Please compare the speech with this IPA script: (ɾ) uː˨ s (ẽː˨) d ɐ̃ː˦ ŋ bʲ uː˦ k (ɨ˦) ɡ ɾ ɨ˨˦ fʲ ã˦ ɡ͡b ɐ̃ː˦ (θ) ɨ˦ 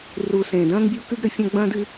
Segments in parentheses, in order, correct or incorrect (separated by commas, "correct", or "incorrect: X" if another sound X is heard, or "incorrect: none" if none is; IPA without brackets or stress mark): incorrect: r, correct, correct, incorrect: d